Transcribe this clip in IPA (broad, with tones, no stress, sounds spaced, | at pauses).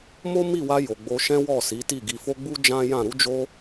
m o˦ m i˦˨ w a˧ j o˨ ɡ͡b o˧ ʃ ɛ̃˦ w ɔ˦˨ s i˨˦ t i˦˨ ɡ i˧ f o˦ ɡ͡b u˦ d͡ʒ ã˦ j ã˦˨ ɾ u˧ d͡ʒ o˧